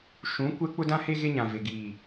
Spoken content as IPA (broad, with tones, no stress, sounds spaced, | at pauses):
ʃ ũ˨˦ kʷ ɛ˦ k͡p ʊ˦ d ã˦ h e˦ ɣ e˦ ɲ ã˨ v e˨ ɡ iː˨